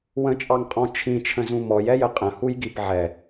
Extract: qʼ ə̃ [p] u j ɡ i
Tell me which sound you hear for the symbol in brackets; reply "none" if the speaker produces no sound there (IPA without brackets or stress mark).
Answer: h